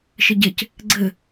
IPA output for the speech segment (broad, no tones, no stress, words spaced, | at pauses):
ʃɘɟec | ɡ͡ǀɘ